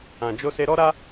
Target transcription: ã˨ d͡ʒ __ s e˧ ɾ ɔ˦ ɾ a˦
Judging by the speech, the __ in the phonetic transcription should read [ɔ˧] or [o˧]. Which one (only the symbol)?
o˧